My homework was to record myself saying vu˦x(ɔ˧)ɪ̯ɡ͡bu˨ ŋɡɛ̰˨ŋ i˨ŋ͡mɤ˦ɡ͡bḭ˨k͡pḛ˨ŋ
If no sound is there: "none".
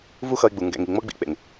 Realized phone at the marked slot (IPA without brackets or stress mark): ʌ˧